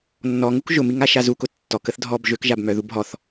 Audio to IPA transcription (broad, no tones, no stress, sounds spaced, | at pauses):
nː ɔ ŋ u k ʒ ʊ m i ŋ a ʃ a z u k ʊ tː ɔ k ə θ dʱ ɔ b ʒ ø k ʒ a b m œ ð u b ɦ ɔ θ